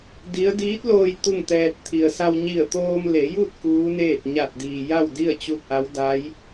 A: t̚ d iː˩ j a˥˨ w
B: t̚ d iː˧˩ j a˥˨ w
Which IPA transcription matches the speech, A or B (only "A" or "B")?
A